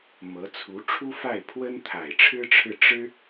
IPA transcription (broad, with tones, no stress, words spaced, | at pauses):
mɤ˧˥t͡sʰu˧˥ ʈ͡ʂʰu˥fa˥˩ɪ̯pʰwə˥n t̪ʰa˨˩ɪ̯ʈ͡ʂʰɻ̩˥ʈ͡ʂʰɻ̩˥˩ ʈ͡ʂɻ̩˥